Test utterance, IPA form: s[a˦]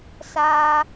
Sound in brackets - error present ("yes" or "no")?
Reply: no